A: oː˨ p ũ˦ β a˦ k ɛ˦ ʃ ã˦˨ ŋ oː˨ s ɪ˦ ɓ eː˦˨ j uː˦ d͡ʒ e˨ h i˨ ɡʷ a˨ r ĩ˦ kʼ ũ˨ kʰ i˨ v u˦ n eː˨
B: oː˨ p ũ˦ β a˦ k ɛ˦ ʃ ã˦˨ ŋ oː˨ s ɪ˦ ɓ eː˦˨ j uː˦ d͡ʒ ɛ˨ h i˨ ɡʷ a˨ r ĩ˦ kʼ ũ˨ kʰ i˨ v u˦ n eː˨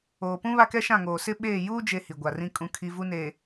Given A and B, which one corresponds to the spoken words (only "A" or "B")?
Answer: A